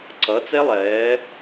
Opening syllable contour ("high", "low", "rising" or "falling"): rising